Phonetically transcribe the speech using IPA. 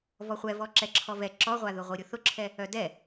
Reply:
v ɔ χʷ ɛ v ɔ ǁ ɛ ǁʰ ɔ v ɛ ǁ ɔ ʁʷ a ð ʊ ʁʷ i ɾʲ ʊ θ ʊ ǁʰ ɛ | œ d ɛ

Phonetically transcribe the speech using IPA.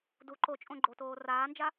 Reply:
d u ǃ o t͡ʃʼ õ ɡ͡ǃ o t oː r aː n d͡ʒ a

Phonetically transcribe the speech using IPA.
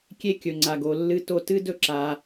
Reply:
kʲ e˥ kʲ ɵ˩ ŋ͡ǀ a˩ ɡ o˩ lː ɨ˧ t o˧ t ɨ˥ d ɵ˥ ǁ a˩

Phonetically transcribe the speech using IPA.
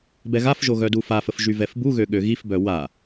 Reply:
b ɛ ɣ a f ʒ o ɣ œ d u f a f ə f ʒ y v ɛ f b u ɣ ø ɠ ø ɣ i f b œ w a

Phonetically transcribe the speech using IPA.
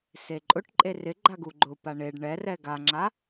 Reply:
s e ǃʼ ʊ ʈ ǃʼ e r ɪ ɡ͡ǃ a ɡ u ɡ͡ǃ ʊ p a ɳ e ɖ ɳ ɛ r ɛ ɡ a ŋ͡ǁ a

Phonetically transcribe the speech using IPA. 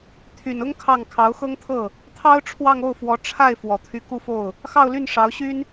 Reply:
t̪ʰ y˨˩ n ʊ˥ ŋ kʰ ɑ˥˩ ŋ kʰ ɑ˧˥ ʊ̯ x ɤ˥ ŋ t̪ʰ ɤ˥˩ | t̪ʰ ɑ˥ ʊ̯ ʈ͡ʂʰ w ɑ˥˧ ŋ o˥˩ ʊ̯ f w ɔ˧˥ ʈ͡ʂʰ a˥˩ ɪ̯ f w ɔ˨˩ t̪ʰ y˧˥ k u˥˧ f o˥˩ ʊ̯ | x ɑ˥˧ ʊ̯ l y˥˩ n ʂ ɑ˧˥ ʊ̯ ɕ y˥ n

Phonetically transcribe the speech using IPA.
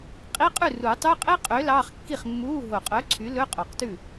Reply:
qʼ i˧˥˧ qʼ ʉ˥˩ r u˨˩˦ tˤ y˧˥˧ qʼ e˥ qʼ ø˨˥ l ɑ˧˥˧ χ kː i˥˩ χ mː uː˧˥˧ ɦ o˨˩ qʼ œ˨˥ ǀʰ y˨˥ l ɵ˧˥˧ qʼ o˨˩ q t ʉ˥˩

